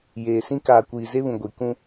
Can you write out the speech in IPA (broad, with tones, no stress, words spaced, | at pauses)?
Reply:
jeː˨sĩ˦ kaː˨kʷiː˨ze˦βũ˨ ɡʷi˨ kũ˦